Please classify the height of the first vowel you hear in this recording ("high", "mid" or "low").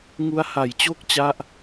high